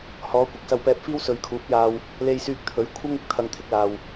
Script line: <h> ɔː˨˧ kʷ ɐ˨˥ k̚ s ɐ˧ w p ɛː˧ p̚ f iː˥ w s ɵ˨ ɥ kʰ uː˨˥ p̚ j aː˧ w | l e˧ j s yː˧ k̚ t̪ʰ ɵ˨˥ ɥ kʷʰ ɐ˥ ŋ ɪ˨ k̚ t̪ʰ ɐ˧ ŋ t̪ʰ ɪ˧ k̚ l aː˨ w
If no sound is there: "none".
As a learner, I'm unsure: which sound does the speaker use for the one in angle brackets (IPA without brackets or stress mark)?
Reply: h